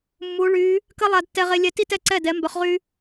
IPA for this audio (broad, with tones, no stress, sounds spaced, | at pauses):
mː u˧˥ ɭ y˧˥ | k ə˥ lˠ a˥ d tː ɛ˥ ʁ e˥ lʲ ɛ˥ t i˥ t ɛ˥˨ ǀ ɛ˥˨ d ɛ˧˥ m b œ˧˥ χ ʁ y˥